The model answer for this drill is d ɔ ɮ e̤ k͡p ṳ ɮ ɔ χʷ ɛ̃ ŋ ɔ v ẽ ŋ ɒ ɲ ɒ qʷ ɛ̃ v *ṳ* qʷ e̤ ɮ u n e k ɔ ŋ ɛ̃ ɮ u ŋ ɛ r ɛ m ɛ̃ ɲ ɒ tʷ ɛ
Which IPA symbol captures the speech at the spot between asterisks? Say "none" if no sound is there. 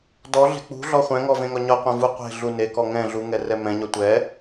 u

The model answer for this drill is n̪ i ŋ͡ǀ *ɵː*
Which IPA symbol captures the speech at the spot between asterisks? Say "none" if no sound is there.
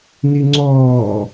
ɔː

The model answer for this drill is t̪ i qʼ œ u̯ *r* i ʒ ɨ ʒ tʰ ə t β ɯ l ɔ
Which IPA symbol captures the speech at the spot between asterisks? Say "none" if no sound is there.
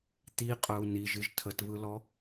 n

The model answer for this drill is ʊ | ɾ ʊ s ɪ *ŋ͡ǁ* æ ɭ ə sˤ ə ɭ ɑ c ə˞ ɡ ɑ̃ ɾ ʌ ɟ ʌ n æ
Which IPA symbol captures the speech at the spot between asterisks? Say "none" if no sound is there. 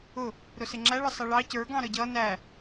ŋ͡ǁ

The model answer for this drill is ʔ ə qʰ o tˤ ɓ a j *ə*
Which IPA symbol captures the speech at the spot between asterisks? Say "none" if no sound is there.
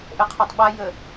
ə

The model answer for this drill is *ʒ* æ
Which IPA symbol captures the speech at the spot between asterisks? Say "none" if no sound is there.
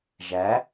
ʒ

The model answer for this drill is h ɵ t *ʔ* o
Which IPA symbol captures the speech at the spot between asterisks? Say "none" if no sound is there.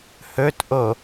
ʔ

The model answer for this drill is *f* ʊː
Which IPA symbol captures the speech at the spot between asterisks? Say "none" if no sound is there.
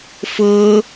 f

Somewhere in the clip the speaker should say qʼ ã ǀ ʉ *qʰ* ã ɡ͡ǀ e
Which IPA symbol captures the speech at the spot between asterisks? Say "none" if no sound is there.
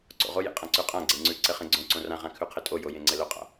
qʼ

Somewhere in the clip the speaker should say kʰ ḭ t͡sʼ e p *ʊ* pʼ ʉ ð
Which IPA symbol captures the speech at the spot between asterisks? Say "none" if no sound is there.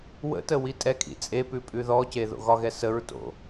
ʉ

